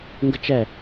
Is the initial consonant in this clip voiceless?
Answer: no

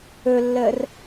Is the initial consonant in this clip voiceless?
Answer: no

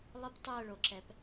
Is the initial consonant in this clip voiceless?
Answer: no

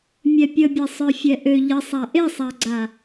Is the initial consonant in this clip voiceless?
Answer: no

